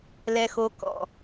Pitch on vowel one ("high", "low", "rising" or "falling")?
low